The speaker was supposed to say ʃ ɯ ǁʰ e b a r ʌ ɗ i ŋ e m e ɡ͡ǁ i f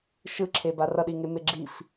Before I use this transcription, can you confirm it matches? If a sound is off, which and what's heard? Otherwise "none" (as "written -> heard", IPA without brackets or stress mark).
none